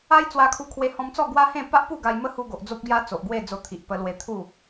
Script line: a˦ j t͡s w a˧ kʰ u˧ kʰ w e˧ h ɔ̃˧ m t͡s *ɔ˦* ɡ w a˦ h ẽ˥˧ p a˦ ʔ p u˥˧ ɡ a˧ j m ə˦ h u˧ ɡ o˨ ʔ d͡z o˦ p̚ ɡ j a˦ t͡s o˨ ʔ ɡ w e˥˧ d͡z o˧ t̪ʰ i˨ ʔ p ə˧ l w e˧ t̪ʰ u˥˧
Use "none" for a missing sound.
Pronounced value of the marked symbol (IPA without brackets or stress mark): ɔ˥˧